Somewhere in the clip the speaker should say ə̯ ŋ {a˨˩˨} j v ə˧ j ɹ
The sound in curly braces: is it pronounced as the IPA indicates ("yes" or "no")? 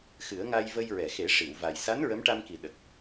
no